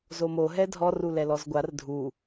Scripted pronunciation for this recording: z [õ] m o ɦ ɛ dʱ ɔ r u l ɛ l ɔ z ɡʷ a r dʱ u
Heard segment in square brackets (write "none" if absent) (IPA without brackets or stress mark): o